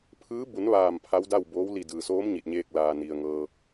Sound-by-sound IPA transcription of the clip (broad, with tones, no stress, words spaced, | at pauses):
pʰɯː˧˥ bu˩˧n ʋaː˧˩m pʰa˧˥wda˥˨wboː˧˥w li˧˩dɯː˩soː˧˥m ɲi˧˩t̚ɲeː˧k̚ laː˩ni˩ə̯ŋɤː˧